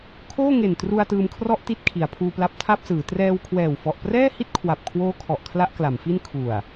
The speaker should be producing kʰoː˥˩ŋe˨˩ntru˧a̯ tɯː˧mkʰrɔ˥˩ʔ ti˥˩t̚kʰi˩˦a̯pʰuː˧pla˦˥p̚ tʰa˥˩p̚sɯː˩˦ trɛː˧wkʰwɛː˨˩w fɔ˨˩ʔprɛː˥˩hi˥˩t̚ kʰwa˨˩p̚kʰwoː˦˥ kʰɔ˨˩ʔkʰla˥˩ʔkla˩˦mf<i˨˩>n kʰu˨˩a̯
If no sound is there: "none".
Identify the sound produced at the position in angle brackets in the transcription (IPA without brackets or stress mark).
i˥˩